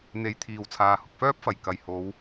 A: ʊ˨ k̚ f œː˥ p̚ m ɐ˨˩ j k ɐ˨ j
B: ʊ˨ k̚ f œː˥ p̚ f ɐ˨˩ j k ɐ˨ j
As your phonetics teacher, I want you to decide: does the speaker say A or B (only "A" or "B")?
B